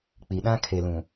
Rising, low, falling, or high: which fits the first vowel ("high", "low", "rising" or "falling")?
low